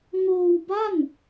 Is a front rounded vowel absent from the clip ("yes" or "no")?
yes